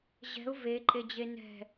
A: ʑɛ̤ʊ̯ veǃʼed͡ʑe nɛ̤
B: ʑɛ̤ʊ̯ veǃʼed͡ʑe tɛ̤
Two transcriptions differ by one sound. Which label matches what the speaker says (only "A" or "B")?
A